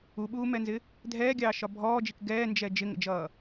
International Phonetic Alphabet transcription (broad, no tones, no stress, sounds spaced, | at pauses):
u ɓ uː m ɛ n z ɪ | dʱ ɛː ɡʲ ɑː ʃ ɒ bʱ ɔː d͡ʒ i k ɡ ɛː n d͡ʒ ɛ d͡ʒ ɪ ŋ ə̰ d͡ʒ ʌː